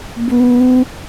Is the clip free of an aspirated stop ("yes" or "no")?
yes